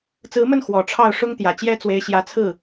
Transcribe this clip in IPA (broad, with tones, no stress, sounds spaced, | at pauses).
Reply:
t͡s ɹ̩˧˥ m ə˥˩ n x w ɔ˨˩ ʈ͡ʂʰ ɑ˥˩ ʊ̯ ʂ ʊ˥ ŋ t̪ j ä˨˩ t͡ɕ j ɛ˥ t͡s w e˧˥ ɪ̯ ɕ j ä˧˥ t͡sʰ ɹ̩˥˩